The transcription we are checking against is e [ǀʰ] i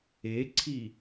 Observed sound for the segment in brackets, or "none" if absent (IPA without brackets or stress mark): ǀʰ